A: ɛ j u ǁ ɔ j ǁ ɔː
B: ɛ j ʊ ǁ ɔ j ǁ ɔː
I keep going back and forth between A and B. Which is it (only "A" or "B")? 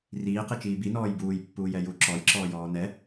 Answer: A